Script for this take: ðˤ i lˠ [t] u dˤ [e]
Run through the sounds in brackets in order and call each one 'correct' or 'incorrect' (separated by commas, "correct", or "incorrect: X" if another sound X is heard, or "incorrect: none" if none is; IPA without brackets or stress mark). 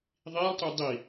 correct, incorrect: i